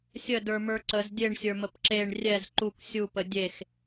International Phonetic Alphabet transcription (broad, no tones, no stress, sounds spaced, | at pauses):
sʲ ə d ə˞ m ə˞ ǀ ə z dʲ e ɳ sʲ ə˞ m ə p ǁ e ɳ rʲ ɛ z ǃ u k sʲ u p ə dʲ e x